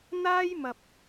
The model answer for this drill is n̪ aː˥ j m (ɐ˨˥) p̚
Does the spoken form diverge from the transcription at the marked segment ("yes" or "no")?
yes